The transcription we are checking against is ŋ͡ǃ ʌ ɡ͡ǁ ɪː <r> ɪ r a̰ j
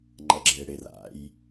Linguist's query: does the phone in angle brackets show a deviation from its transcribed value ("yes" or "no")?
yes